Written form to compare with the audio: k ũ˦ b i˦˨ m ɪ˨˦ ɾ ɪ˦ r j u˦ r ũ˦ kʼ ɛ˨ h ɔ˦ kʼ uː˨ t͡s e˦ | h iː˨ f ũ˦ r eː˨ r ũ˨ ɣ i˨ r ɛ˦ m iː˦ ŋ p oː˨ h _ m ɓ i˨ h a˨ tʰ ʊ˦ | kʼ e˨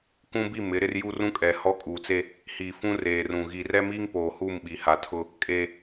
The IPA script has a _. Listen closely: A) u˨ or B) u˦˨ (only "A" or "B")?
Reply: B